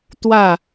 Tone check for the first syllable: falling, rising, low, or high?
falling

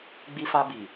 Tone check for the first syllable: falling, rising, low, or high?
high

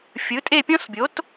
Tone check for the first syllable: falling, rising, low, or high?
rising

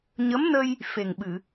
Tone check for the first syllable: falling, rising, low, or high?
rising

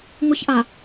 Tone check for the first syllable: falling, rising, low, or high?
high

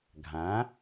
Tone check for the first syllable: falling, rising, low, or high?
rising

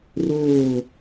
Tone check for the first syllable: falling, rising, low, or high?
falling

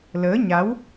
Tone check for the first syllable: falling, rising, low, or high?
rising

